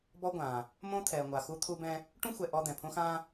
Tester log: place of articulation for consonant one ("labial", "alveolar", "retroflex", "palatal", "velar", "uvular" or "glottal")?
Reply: labial